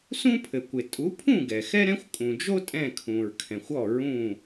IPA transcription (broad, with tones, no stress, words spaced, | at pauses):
sũ˥pʰɘ˩kʷɪ˩ tʼu˨˦pʰũ˥˨ɡɛ˩ xɛ˥ɾɛ̃˥xʷkʼũ˩d͡ʒo˥ tʼɛ̃˥˨kʰũ˩ɹkʰɛ̃˩xʷ ɔ˥˨ɹũ˥˨